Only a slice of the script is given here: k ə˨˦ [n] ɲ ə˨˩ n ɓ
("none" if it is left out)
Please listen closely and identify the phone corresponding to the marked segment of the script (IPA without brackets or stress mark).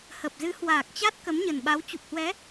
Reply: m